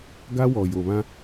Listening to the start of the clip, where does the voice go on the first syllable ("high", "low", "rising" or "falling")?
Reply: high